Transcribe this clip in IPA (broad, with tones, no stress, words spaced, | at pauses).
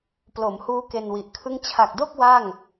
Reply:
plo˩˦mhuː˦˥ ke˧nwi˨˩ʔkʰɯ˥˩ŋ t͡ɕʰa˨˩k̚do˥˩k̚ wa˥˩ŋ